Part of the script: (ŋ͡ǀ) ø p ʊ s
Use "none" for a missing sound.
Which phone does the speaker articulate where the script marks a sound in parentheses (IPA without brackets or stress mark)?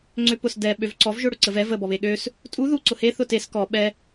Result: ŋ͡ǀ